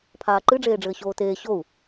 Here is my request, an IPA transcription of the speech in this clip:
pʰ aː ǃ ɨ ɖ͡ʐ eː ɖ͡ʐ ɘː ɕ oː t eː ɕ o u̯

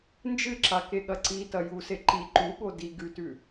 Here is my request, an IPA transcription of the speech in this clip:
n d͡ʒ ɨ ǁ a k e ɠ ɐ ǀ i t ɐ j u s e ǃ i ǃ u ɠ o d i ɡ ʉ t ʉ

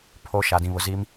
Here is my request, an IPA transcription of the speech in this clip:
pʰ o˦ ʃ a˨ d ĩ˨ β ʊ˨ z i˦ m

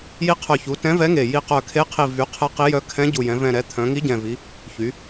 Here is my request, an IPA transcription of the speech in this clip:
j i˧˥ qʰ œ˨˩ ç u˩˧ t ɛ̃˧˥ v ɛ˧˥ ŋ e˨˩ j i˨˩ q œ˨˩ kʰ e˧˥ qʰ i˨˩ v y˩˧ qʰ ɛ˧˥ q i˧˥ j œ˧˥ kʰ ɛ̃˧˥ ɟ u˨˩ j ɛ̃˩˧ v ɛ̃˨˩ ɾ ɛ˩˧ t̪ʰ œ̃˩˧ ŋ i˧˥ ɟ ɛ̃˨˩ v i˩˧ | ç y˩˧

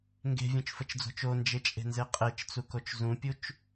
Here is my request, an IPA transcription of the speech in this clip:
ŋ ɡ e̤ vʲ ũ t͡ʃ f ə t͡ʃ d͡z o̤ t͡ʃ o n d͡ʒ e t͡ʃʼ e̤ n z e qʼ e t͡ʃ t͡s u k o t͡ʃ z ũ pʲ u t͡ʃ

